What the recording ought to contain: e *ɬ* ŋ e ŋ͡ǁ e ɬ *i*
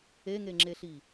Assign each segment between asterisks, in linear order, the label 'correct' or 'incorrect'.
incorrect: none, correct

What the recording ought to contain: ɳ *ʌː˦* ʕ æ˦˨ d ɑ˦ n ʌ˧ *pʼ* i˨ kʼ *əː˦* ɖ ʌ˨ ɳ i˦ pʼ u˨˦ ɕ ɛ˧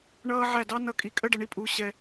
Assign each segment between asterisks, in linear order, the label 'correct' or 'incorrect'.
correct, incorrect: kʼ, incorrect: ə˦

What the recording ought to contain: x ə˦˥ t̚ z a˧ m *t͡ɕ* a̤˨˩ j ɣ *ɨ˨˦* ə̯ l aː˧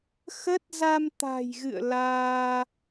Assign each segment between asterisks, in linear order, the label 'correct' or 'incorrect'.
incorrect: t̪, incorrect: ɨ̰˧˨

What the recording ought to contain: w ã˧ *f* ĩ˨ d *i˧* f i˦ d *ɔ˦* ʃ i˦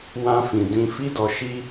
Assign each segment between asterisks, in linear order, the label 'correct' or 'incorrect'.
correct, incorrect: ĩ˧, incorrect: ɔ˧

